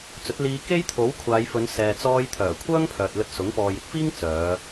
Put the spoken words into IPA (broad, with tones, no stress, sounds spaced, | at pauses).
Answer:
t͡s ɵ˨˥ t̚ l iː˧ k e˥ j t̪ʰ o˨˥ w kʷʰ aː˨˧ j f ɵ˨˧ n s ɛː˨ t͡s ɔː˧ j t̪ʰ œː˨˩ kʷʰ œː˥ ŋ pʰ œː˨ t̚ l ɵ˧ t̚ s ʊ˨˥ ŋ p ɔː˨ j ɪ˧ k̚ f iː˥ ŋ t͡s œː˨˧